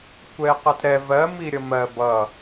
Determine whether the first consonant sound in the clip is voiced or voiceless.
voiceless